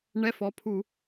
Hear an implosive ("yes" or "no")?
no